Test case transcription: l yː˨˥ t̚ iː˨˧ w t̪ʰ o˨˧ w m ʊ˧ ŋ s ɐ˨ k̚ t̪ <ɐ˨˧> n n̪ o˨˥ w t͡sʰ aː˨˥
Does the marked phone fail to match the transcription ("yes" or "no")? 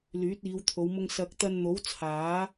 yes